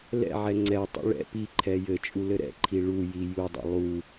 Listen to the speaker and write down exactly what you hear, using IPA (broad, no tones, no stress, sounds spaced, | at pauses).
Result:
l ɛ̰ ʕ ɛ ŋ͡ǀ ɛ tˤ ṵ ɭ ɛ̰ p i ǃʰ ɛ j ɘ t͡ʃʼ u l ɘ ɾ ɛ̰ ǃʰ i ɭ u j i j u dˤ ɛ̰ lˠ u